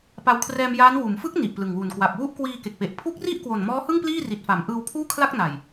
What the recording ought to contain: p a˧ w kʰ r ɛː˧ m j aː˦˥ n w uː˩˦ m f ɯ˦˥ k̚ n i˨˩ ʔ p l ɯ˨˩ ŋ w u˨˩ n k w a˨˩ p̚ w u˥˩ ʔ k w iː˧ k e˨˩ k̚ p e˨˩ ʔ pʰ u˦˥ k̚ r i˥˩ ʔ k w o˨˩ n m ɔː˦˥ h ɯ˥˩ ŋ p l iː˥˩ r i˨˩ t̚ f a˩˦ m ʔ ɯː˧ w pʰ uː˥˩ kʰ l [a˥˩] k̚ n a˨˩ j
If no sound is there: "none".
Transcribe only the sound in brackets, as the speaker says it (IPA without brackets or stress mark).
a˥˩